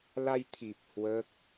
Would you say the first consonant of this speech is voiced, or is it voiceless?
voiced